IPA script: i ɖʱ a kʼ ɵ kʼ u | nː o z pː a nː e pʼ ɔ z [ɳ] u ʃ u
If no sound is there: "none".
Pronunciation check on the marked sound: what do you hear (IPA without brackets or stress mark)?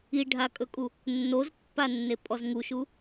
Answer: ŋ